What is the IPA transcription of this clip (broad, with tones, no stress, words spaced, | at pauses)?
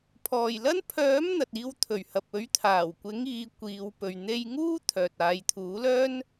pʰɔː˨˩jlɐ˥n pʰœː˨˥m n̪ɐ˨t̚iː˧wt̪ʰɵ˨˩ɥ hɐ˨p̚ɵ˨˥ɥ t̪ʰaː˨˩wkʷɪ˨˥ŋ iː˨˧kʷiː˨˧wpɵ˨ɥ n̪e˧jŋuː˥ t̪ʰœː˨t̚aː˨˧j t̪ʰuː˨˥lœː˥n